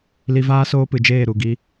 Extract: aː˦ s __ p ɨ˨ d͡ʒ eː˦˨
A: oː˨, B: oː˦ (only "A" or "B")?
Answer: B